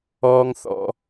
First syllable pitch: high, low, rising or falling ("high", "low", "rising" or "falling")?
high